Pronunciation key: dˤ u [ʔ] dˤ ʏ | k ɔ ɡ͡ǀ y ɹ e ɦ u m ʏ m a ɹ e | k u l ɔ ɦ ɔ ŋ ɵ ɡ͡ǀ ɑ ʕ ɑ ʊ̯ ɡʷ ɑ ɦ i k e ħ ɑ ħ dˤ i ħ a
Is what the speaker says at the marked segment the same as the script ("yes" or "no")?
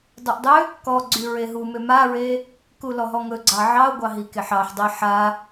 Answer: yes